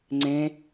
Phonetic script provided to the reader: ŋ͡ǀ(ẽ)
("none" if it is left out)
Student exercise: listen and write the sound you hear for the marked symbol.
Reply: ẽ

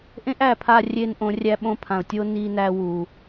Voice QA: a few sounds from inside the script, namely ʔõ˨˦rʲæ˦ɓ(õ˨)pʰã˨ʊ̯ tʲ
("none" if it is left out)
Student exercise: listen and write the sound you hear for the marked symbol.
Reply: õ˦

